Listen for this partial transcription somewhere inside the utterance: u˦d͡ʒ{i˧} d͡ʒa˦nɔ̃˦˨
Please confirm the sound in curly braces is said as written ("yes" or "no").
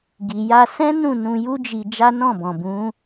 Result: yes